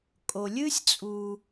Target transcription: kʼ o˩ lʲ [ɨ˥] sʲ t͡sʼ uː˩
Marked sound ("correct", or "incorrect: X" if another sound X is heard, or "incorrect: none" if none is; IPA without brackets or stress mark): correct